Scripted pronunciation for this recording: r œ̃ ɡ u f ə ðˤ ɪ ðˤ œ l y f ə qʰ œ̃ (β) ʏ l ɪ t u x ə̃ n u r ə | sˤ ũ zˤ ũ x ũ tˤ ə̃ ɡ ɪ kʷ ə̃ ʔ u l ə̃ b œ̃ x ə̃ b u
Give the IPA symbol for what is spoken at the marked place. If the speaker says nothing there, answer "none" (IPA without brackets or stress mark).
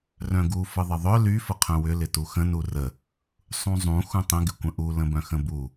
w